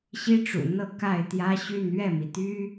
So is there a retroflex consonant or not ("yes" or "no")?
yes